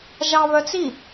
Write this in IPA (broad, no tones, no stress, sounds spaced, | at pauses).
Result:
ʒ ɑ β œ t͡s i